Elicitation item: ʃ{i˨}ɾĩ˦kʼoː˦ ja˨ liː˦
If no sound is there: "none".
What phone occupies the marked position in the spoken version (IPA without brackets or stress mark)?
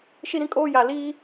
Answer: i˦